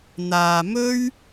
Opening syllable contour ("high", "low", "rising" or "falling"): low